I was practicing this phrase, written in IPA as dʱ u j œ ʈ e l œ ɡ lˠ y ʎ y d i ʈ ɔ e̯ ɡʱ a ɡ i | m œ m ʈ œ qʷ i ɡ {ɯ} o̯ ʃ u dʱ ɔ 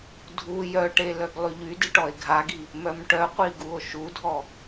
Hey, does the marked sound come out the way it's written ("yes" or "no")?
no